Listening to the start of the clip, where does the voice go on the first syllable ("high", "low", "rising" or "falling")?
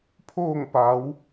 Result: falling